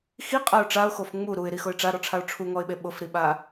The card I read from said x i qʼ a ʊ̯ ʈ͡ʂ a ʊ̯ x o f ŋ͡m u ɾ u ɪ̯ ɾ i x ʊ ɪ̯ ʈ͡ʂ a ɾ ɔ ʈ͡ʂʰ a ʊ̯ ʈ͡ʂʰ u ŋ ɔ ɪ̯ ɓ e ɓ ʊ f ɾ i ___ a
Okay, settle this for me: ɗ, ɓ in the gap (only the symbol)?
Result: ɓ